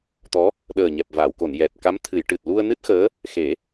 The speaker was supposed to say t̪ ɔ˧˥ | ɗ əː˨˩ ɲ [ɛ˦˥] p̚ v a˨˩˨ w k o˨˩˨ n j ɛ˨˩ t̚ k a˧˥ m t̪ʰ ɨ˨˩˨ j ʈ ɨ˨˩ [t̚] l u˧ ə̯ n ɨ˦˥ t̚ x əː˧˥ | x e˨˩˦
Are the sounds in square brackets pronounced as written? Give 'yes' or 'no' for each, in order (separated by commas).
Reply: no, yes